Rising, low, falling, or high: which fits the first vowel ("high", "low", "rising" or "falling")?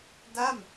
falling